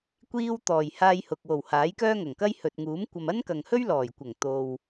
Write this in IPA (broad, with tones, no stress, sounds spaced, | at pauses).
kʷ iː˧ w t̪ ɔː˨˩ j h aː˧ j h ʊ˨ k̚ w o˨˩ w h aː˨˥ j k œː˥ ŋ ɐ˨˩ ŋ k ɐ˥ j h ɵ˨ t̚ ŋ uː˨˥ m kʷ ɐ˨ m ɐ˥ n k ɐ˨ ŋ h ɵ˥ ɥ l ɔː˨˩ j kʷ ɐ˨˩ ŋ t̪ o˨ w